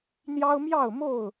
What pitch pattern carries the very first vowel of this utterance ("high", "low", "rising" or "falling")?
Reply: high